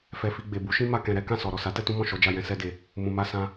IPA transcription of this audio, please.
fɛ˧fi˧ ɡ͡be˨bu˨˦ʃĩ˦ ma˦˨kɛ̃˧ ɾɛ˦ kã˦˨sɔ˨ ɾɔ˨sa˨˦ tɛ˦tũ˦mɔ̃˦˨ ʃɔ˨˦d͡ʒa˧jɛ̃˧ sɛ˧de˨ | mũ˧ ma˧ sã˧

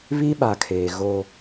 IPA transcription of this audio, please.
βi˦ɓa˨kʰeː˨ ɣo˦

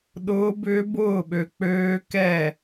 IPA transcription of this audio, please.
ɗʊː˦˥bʏː˦˥bʊː˥˨ɓø˧ k͡pøː˦˥kɛ˥˨

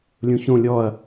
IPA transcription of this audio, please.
lʲũçõ lʲɔɐ̯

